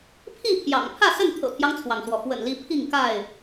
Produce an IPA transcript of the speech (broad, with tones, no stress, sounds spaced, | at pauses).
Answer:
pʰ i˥˨ pʰ j ɑ̰˨˩ ŋ pʰ ä˥˨ s ə˥˨ n t̪ʰ ɤ̰˨˩ t̪ʰ j ɑ˦ ŋ t͡sʰ w ɑ˩ ŋ s w ɔ˩ f w ə̰˨˩ n l i˨˦ pʰ i˥˨ ŋ k a˥˨ ɪ̯